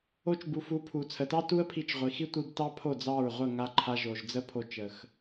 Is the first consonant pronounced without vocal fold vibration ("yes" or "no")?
yes